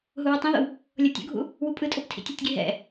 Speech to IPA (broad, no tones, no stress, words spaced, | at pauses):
ɦuwɯtˤĩðo̰w | lʲɤtʲo̰ɡʱṵ | wupʼɯtʼob tʰḭtʲɛtʲɡi ɦɛ̰